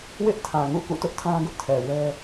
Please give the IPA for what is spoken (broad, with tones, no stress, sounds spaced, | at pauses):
w ɪ˦ ʔ tʰ ã˨ ŋ ṵ˦˨ k ṵ˦˨ t ʊ˦ ʔ tʰ ã˦ ɡ ʊ˦ ʔ tʰ ɛ˨ w ɛ˦